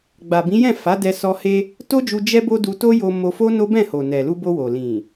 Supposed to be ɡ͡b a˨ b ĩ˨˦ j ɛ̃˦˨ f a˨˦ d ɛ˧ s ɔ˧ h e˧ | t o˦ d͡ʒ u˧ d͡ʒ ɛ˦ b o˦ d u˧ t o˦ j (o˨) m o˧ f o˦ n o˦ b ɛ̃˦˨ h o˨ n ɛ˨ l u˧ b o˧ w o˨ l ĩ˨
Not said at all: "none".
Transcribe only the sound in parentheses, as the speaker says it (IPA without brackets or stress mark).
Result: o˧